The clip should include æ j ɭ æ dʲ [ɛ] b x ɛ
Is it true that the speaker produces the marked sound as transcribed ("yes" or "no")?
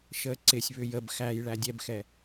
yes